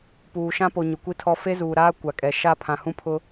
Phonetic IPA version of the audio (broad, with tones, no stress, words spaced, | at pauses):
puː˨ʃã˦po˨ ɲʊ˨kʷi˦tʰɔ˦ fe˦zuː˨ɾaː˦ kʷa˨kʼɛ˨ ʃa˦ pʰã˨hũ˦pʰʊ˦